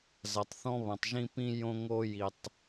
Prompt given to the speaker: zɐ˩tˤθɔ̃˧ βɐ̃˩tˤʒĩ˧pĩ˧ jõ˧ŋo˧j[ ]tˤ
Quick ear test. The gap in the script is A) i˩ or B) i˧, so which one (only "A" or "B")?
A